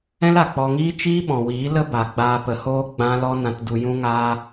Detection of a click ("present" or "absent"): absent